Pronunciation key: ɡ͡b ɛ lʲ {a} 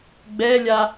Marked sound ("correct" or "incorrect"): correct